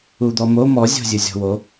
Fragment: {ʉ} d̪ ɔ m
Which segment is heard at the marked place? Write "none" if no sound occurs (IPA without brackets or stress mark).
u